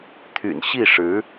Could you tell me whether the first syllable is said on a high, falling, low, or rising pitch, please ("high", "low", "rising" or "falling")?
low